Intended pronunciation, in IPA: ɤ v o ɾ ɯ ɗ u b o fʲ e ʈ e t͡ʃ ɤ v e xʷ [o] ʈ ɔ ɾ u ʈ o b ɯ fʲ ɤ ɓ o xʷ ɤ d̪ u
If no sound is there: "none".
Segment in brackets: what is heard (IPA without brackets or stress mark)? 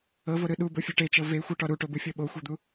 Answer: ɤ